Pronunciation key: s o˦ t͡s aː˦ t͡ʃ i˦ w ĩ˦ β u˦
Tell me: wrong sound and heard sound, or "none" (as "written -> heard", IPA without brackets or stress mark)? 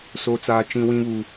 i˦ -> ĩ˦